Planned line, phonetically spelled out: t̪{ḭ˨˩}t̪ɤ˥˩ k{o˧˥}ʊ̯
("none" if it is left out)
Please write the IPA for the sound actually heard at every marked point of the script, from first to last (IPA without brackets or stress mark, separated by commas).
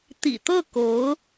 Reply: ḭ˨˩, o˧˥